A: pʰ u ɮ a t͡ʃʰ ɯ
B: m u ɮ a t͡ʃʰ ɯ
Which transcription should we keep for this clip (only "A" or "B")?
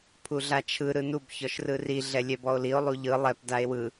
A